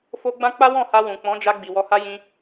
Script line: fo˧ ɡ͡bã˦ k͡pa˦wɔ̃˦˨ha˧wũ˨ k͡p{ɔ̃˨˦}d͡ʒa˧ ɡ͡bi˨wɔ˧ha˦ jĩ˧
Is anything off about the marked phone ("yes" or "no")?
no